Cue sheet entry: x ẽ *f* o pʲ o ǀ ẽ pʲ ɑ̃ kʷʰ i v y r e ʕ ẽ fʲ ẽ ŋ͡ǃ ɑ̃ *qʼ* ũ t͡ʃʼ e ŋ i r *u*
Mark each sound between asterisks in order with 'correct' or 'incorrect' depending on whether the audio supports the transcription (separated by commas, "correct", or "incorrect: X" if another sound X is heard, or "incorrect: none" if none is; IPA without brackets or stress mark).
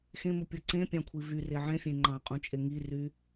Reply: incorrect: m, correct, incorrect: y